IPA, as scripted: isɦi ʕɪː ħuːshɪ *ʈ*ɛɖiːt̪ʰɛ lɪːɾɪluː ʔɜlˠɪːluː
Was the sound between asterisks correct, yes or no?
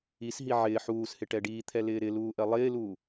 yes